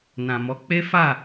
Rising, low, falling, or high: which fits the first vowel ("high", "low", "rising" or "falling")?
low